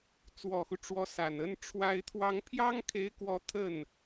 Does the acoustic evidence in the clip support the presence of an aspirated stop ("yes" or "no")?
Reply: yes